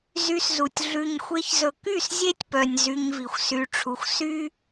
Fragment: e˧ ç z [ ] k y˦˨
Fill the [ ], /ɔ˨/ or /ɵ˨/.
ɵ˨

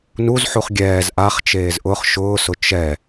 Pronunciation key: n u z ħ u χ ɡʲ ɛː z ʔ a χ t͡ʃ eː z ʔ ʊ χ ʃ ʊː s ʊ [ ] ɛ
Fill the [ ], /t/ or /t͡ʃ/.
t͡ʃ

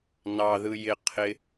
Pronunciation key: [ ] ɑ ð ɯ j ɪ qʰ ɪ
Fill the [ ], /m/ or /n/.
n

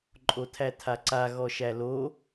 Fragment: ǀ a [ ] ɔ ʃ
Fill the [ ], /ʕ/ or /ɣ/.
ɣ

